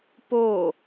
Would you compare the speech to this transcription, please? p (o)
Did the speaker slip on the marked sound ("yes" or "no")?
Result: no